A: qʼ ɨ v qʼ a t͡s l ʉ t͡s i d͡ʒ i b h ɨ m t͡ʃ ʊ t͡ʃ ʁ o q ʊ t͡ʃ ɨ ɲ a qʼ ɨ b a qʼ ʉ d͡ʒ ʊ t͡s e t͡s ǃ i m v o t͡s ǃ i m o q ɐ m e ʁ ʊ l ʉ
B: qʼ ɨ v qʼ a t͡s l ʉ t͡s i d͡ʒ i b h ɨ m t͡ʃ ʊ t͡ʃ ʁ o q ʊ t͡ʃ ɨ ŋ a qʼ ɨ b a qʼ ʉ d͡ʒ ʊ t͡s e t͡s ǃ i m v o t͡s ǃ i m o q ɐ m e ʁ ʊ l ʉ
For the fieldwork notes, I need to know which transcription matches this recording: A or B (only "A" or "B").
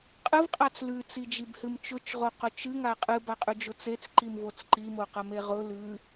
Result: B